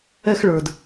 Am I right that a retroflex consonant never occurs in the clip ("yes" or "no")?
no